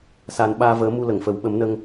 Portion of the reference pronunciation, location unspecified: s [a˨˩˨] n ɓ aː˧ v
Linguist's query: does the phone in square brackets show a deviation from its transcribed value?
yes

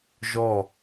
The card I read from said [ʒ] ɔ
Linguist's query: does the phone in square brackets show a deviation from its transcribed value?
no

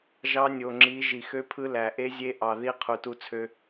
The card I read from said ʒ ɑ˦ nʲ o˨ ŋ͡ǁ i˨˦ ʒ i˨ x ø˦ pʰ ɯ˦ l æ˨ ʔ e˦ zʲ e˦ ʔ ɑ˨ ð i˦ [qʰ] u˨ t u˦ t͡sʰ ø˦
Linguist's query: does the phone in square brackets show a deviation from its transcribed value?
no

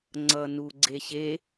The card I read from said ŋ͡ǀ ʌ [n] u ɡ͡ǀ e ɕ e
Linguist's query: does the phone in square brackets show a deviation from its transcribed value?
no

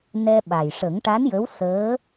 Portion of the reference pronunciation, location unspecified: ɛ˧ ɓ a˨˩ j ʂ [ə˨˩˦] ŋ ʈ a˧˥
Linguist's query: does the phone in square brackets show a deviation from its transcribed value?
no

